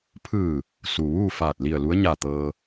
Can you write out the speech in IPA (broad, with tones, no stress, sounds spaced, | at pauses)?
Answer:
pʰ ɯː˧˩ | s u˩ ʋ uː˥˨ f aː˧˩ t̚ l i˧˩ ə̯ l u˧˥ ə̯ ɲ a˧˩ t̪ ɤː˧